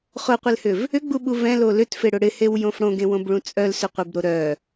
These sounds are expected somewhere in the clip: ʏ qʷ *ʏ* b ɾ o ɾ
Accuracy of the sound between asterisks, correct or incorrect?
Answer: incorrect